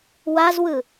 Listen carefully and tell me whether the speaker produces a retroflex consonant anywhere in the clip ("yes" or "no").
no